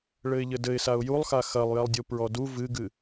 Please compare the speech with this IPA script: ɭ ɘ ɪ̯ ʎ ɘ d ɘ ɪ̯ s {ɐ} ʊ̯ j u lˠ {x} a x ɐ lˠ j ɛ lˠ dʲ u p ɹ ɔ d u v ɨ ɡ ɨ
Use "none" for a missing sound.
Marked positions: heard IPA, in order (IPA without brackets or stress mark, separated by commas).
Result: a, x